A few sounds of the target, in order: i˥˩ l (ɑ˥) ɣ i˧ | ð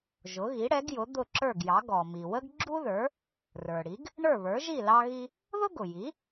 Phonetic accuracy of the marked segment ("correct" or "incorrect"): incorrect